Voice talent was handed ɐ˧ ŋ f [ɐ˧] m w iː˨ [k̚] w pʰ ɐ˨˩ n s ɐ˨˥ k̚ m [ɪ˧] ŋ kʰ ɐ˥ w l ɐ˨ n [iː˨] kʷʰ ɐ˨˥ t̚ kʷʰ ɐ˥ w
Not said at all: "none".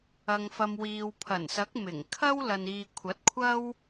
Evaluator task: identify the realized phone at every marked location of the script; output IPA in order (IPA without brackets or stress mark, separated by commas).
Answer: ɐ˧, none, ɪ˨˩, iː˨